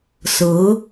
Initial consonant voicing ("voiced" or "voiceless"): voiceless